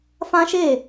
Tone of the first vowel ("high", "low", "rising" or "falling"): high